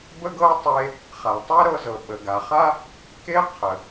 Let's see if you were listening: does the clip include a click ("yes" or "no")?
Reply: no